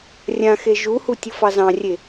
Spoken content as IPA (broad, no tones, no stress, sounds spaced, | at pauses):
rʲ ã x e ʒ u h u tʲ ɤ f ɑ z ɑ̃ rʲ e